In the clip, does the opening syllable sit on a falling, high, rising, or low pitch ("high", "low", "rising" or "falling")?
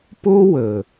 high